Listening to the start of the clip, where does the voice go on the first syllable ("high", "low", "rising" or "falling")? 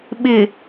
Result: low